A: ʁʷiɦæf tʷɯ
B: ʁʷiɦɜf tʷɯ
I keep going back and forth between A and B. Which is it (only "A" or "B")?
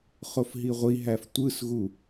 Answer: A